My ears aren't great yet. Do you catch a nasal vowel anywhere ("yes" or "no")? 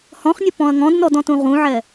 yes